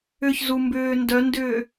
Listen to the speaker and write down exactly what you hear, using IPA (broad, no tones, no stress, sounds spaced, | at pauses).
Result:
ʏ ç z u m b ʏː n d œ n d ʏː